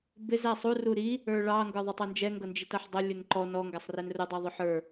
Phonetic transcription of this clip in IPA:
bɪz æsˤu ruɾi | ə˞ɭɑ ŋɡə˞ðˤɪtˤɛnd͡ʒɛ ŋɡʌnd͡ʒitʌħdˤʊ lʲʊnǃɔ nɔ ŋɡæsˤrɛnrʊ dˤiðˤʊħə˞

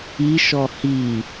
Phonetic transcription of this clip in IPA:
iʃɔ hi

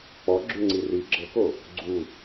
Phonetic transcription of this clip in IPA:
k͡pɔɡ͡ǁʉŋ͡ǀi ri ɡ͡ǁɤko | ɡ͡ǀu

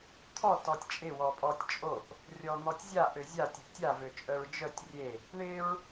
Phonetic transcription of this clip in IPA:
t̪ʰɔ tɔtʲt͡ʃʼɪ wɔpʼɔtʲt͡ʃʼoʔ | rʲɔn̪ɔtʲzʲa ʔøzʲa tʲøʔtʲa vøt͡ʃʼœɹd͡ʒœtʲ rʲe | ɳɪɹ

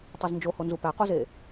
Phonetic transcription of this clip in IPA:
tˤeznd͡ʒoho nzupæqoze

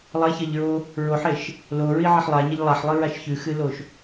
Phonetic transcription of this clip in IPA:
lˠɐçɐʎɹo | ɹoħeʃ | loɹiʕeħ lˠaɲɐʎ lˠaħlˠɨɹaʃ çʉxɨloʃ

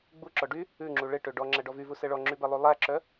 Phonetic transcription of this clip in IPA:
ɡ͡buǁɔ ɖy | ʉŋ͡ǁu ɭeʈø ɖɔŋ͡ǁæɖɔ vyvusɛ ɭɔŋ͡ǁybɛlˠu lˠæǁœ

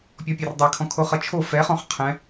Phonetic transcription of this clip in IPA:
pʲɔpʲerdˤekʰɔ̃ kʰoχʌt͡ʃʰo fɛχɔ̃χ qʰɛ̃

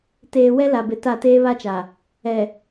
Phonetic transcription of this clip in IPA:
teː˨ wɛ˦la˨bɪ˨ ta˦˨teː˦βa˦t͡ʃa˨ | ɛ˨

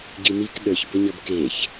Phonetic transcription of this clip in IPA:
ɟin̪ik ɗə˞çbʌɲʌb keç

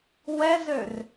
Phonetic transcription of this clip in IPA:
wɛzør

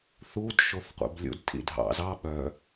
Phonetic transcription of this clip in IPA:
θud ʃoθqʷɛ̰blʲṵd tʰḭdʱɑ̰zɑ ɓœ

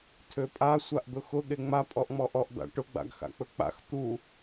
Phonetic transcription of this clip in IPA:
tʰøpʼa sʷaʔd̪ʊxʊ ɠeŋ͡ma pʼɔʔŋ͡mɔʔɔʔ d̪a̰ʈʊ ɡ͡ba̰ɡxa̰k͡pɵk͡pa̰x t̪u

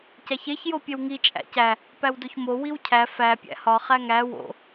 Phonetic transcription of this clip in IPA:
cæçeç jopʲewŋi t͡ʃʼæ̰cæ | pæwdoçmo wiwcʰæ fæ pʲæ̰hɒ χæŋæ wo̰

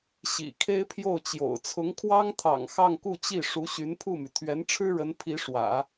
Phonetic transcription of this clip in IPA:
ɕḭ˨˩kʰe˥ɪ̯pʰjo˥˩ʊ̯t͡ɕjo̰˨˩ʊ̯ t͡sʰʊ˧˥ŋkʰwɑ˥ŋt̪ʰɑ̰˨˩ŋ xɑ˥˧ŋku˥˧t͡ɕi˥˩ ʂu˧˥ɕy˧˥npʰu˥˩my˩ t̪ʰɥɛ˧˥nʈ͡ʂʰɻ̩˥ɻə˧˥n pʰi˧˥ʂwä̰˨˩˦

